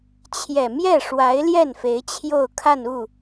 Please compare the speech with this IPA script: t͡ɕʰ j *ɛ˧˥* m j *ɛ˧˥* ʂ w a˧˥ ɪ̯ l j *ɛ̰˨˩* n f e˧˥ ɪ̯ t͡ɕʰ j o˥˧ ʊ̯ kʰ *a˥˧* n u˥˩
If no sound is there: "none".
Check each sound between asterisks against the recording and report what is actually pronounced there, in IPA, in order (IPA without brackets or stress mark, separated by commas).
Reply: ɛ˨˩, ɛ˥˩, ɛ˥˩, a˥˧